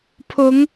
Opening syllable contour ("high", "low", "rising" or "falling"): rising